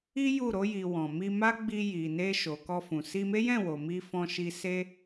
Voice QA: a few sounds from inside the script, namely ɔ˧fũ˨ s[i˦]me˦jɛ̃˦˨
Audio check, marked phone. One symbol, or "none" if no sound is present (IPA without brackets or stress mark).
i˧